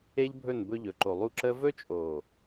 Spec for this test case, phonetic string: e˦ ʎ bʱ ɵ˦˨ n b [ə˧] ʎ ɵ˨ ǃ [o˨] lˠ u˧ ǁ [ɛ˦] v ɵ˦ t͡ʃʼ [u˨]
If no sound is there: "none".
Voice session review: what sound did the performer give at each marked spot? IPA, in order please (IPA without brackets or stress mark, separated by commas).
ɵ˧, o˨, ə˦, o˨